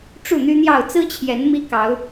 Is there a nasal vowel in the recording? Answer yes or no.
no